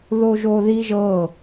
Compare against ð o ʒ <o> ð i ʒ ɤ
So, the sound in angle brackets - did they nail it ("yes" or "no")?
yes